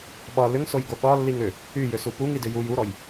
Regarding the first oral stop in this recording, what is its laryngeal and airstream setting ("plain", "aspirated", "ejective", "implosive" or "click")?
implosive